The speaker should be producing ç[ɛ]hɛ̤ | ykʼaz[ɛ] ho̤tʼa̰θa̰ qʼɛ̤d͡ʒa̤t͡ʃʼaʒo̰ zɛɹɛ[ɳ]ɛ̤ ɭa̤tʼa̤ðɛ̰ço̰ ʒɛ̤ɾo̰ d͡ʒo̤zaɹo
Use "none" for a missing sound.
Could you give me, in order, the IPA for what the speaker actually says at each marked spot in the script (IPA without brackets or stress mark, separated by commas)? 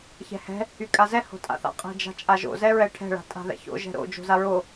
ɛ̤, ɛ, ʈʰ